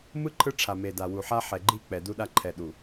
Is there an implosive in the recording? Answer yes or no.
yes